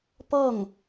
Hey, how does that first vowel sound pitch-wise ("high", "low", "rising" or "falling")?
falling